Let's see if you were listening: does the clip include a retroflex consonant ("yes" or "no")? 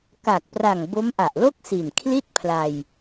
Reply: no